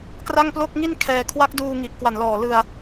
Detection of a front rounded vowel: absent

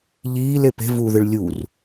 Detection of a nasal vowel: absent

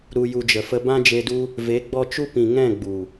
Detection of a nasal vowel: present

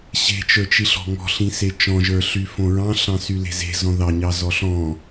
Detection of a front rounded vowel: present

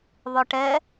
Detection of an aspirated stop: absent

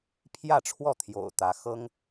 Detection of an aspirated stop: present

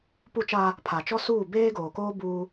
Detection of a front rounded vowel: absent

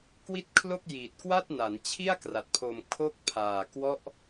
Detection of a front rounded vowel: absent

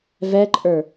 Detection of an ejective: present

